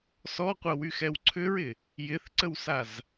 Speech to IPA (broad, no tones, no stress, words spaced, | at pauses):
sɔqʷɐwyxɛw ǀʰʏɹɪ | jɪθǀəwsaz